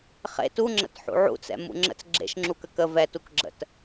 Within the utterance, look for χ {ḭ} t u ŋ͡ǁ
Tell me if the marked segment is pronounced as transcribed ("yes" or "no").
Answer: no